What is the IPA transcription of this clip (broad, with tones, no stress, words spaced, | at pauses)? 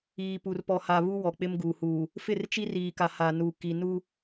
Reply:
iː˨pu˨rpɔ˨ha˨ βu˦ wɔ˨k͡pɪ˦mɡu˨huː˨ | fɪ˦˨rt͡ʃi˦riː˨ka˨ ha˨nu˨ ki˨ nu˦